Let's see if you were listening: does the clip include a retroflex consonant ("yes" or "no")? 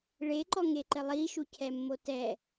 yes